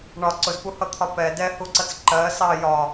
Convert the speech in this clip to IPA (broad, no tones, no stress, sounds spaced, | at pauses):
ɳ ɒ ǀ ʊ z p u h ʌ t̪ʰ ɒ p ɛ d ɛ h u ǀ ʌ t͡s ǃ ɜ s ɑ j ɒ